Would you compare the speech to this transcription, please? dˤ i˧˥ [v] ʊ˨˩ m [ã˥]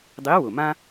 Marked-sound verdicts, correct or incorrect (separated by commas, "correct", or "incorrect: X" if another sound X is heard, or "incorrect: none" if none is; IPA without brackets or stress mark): incorrect: w, correct